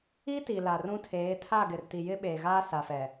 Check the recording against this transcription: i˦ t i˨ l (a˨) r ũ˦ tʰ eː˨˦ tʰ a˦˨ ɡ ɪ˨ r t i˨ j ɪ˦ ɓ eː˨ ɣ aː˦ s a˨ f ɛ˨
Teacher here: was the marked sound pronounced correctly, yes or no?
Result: yes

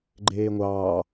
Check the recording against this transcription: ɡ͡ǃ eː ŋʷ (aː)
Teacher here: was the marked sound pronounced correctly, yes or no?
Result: no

